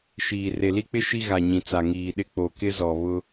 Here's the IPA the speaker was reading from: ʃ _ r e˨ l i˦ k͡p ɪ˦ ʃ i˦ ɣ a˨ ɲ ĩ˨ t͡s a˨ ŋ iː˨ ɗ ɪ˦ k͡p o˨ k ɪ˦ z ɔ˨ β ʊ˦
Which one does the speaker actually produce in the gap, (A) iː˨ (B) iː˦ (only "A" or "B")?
A